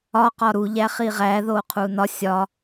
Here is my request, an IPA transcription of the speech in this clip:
ɒ q ɒ ɾ u ʎ æ χ i ʁ æ ð o qʰ u n ɒ sʲ ɒ

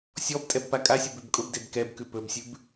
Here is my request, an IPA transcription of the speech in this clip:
sʲ ɔ b tʼ ɛ b p a kʼ a sʲ ʊ b ʉ b kʼ ʊ b d e b k ɛ b k ʉ p ɵ b sʲ ʉ b

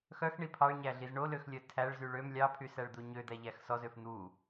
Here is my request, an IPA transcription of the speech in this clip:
x œ x ɳ i pʰ ɑ ɭ ɲ æ ɮ i z ɳ o l ø x lʲ œ tʰ æ ɭ z y ɭ ø m lʲ ɑ pʰ y s æ ɭ d̪ u ɲ ø d̪ æ ʎ æ x s ɔ z ø f n̪ u

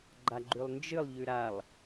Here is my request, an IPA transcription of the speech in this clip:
ɡ͡ǃ a ɡ͡ǃ ʉ lˠ n d͡ʒ ɨ lˠ ʎ ʉ ɾ a lˠ

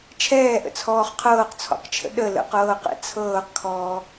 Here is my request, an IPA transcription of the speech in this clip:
t͡ʃʰ ɛː ʔ ə̰ t͡sʰ ɔː χ qʰ ɤː q t͡sʰ ɔ̰ q t͡ʃʰ ə̰ ɗ ə l ə̰ q ɤː q ɛ̰ t͡sʰ ɤː q kʰ ɔː

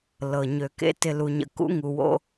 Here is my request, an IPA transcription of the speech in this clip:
l ɤ˨ ɲ ø˨ k ḛ˦ t ɪ˦ l u˦ ɲ ə̰˦ k ṵ˦ ŋ u˨ w o̰˦

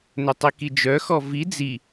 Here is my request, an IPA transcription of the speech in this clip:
n ɵ tˤ i k i d͡ʒ œ x ɔ v i d͡z i

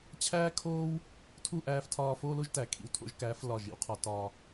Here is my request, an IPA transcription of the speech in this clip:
t͡ɕʰ æː˦ kʰ oː˦ w | tʰ u˦˨ ʔ æː˧ f tʰ ɒː˧ f oː˦ l o˦ ʒ t æ˨ kʰ ḭ˨ w tʰ o̰˨˦ ʒ k æː˨˦ f l ɒː˦˨ ʒ ḭ˧ w qʰ ɒ˧ t ɒː˧

